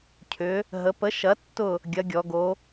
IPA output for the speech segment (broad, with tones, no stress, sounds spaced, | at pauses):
cʰ ʏ˩˧ | ɦ ə˩˧ p ə˨˥ ʃ ɐ˨˥ tː ʊ˦˨ | ɡʲ ɐ˨˥ ɡʲ ɔ˩˧ ɡ o˨˥